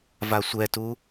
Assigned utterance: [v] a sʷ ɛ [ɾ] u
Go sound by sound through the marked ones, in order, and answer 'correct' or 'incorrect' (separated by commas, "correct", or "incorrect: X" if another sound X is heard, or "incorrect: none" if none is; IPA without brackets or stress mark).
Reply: correct, incorrect: t